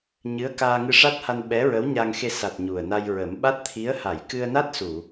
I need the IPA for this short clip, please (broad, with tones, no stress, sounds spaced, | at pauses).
ɲ ɨ˧˥ ə̯ k aː˧ ŋ ɨ˧ ʂ a˦˥ t̚ h a˧ n ɓ ɛ˧˥ ɹ ə˧˥ w ɲ a˧ ŋ x e˧ s a˨˩ t̚ ɲ u˨˩ ə̯ n a˧ j ɹ ə˨˩˦ m ɓ a˦˥ t̚ t̪ʰ i˧˥ ə̯ h a˨˩˨ j k ɨ˧ ə̯ n a˦˥ t̚ s u˨˩˨